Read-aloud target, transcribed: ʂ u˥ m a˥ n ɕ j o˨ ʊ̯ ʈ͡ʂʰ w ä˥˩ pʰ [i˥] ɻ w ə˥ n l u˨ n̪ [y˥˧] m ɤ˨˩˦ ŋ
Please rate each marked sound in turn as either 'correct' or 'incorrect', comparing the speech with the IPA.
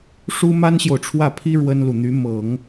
correct, incorrect

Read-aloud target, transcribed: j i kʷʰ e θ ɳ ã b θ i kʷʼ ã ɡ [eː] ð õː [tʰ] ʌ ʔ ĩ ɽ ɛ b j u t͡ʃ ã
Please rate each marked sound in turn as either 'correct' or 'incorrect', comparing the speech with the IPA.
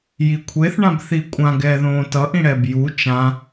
incorrect, incorrect

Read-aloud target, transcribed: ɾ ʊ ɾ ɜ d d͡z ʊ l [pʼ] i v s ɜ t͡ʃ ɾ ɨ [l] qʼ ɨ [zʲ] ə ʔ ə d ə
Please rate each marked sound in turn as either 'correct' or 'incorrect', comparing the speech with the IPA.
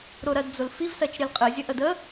incorrect, correct, correct

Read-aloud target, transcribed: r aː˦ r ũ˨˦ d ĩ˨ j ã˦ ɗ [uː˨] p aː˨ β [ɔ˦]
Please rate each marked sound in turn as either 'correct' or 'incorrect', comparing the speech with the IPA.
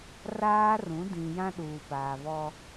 correct, correct

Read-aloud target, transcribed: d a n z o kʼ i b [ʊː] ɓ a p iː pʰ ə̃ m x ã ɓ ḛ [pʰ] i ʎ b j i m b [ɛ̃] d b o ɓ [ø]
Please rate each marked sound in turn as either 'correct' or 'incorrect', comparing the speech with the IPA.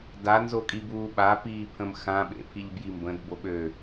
incorrect, correct, incorrect, correct

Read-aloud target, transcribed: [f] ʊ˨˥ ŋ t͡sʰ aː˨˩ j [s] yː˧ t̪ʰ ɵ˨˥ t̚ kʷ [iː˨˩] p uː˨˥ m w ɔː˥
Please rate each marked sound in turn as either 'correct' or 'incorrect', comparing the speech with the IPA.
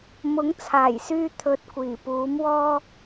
incorrect, correct, correct

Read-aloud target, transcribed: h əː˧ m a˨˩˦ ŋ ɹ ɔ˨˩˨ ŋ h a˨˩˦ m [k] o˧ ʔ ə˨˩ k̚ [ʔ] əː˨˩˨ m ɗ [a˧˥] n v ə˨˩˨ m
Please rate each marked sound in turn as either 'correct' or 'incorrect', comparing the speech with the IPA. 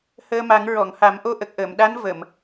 incorrect, correct, correct

